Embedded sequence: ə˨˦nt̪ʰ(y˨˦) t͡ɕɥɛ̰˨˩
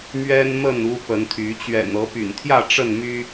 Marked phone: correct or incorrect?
correct